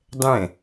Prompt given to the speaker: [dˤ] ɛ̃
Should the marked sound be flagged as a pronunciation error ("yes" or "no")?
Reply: no